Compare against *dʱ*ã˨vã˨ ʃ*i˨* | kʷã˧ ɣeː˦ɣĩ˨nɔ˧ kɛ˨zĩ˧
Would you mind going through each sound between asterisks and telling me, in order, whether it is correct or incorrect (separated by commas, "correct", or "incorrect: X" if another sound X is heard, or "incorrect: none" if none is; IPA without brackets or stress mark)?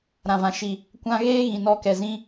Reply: incorrect: ɾ, correct